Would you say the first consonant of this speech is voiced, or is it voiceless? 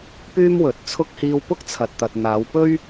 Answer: voiceless